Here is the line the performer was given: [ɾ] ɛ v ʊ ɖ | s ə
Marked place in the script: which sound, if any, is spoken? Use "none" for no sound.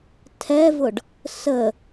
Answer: tʰ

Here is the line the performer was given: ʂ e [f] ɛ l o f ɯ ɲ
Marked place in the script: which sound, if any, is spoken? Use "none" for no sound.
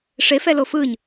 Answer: f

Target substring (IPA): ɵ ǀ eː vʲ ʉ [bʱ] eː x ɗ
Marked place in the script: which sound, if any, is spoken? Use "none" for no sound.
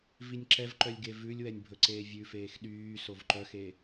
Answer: f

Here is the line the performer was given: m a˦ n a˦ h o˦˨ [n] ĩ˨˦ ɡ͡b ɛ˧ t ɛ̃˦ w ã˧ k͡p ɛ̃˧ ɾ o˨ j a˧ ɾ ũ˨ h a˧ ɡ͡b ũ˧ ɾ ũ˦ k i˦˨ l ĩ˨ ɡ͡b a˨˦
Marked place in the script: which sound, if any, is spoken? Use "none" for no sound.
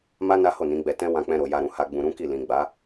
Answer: n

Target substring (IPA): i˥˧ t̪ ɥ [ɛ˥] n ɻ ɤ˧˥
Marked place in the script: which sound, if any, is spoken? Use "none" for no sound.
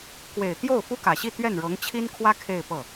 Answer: ɛ˥˩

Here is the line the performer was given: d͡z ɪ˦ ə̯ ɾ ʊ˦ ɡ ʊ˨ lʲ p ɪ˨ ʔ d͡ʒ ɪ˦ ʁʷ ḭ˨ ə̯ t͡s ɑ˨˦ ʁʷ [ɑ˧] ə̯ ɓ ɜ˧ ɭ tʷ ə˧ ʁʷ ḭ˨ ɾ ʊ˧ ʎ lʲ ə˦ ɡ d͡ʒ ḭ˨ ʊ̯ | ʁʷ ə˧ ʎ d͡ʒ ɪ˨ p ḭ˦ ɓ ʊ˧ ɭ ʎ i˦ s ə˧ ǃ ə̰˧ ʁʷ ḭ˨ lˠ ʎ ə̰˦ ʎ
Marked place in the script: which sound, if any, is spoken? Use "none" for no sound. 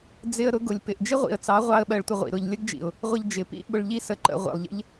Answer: ɑ˧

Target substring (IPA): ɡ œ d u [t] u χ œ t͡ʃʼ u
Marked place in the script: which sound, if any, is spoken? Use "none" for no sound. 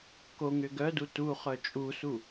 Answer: t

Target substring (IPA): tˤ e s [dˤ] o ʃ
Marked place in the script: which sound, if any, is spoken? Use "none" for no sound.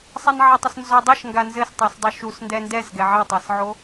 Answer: dˤ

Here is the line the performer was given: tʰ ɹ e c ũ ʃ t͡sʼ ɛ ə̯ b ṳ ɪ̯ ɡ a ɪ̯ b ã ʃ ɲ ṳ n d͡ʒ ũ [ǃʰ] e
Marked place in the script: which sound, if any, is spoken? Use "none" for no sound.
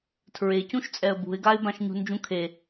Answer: kʰ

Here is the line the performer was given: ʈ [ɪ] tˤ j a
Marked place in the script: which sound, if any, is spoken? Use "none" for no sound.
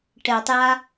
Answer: ɛ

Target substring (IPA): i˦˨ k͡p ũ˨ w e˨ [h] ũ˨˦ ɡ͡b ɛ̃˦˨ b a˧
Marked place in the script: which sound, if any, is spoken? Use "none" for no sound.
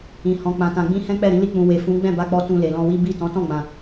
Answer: f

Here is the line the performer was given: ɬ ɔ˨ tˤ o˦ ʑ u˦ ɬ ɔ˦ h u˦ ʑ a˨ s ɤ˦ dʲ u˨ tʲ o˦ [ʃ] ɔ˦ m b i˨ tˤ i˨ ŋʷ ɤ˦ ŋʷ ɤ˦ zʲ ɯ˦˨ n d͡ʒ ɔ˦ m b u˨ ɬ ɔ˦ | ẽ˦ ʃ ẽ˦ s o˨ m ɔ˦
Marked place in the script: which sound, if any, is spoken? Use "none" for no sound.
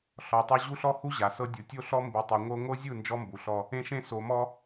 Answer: ɬ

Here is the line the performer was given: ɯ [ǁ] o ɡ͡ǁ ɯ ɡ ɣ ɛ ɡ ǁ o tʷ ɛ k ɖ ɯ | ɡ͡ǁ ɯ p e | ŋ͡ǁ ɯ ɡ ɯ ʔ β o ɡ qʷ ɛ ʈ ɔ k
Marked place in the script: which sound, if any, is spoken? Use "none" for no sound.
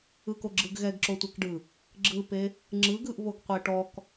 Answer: k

